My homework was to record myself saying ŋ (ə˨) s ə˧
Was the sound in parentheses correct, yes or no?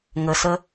yes